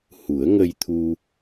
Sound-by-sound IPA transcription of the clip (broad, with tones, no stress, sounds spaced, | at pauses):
h u˨˩˦ ə̯ ŋ ə˧ j t̪ʰ u˧